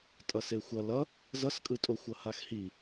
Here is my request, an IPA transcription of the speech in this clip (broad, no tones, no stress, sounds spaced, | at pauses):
tʼ ʌ s e xʷ ʌ l ʌ | z ʌ s kʼ ɯ tʼ o xʷ ʌ h a x h i